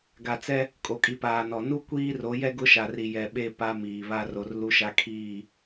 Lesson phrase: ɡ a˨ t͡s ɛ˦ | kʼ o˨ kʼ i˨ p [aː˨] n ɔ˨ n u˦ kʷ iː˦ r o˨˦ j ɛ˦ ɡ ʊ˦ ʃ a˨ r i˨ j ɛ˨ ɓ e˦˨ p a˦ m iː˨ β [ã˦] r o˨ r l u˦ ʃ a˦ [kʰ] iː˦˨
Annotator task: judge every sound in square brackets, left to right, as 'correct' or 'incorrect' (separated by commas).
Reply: correct, incorrect, correct